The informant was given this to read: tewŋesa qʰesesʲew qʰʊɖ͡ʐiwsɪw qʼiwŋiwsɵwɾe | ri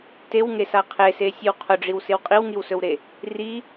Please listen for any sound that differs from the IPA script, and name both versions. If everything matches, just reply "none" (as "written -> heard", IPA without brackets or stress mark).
none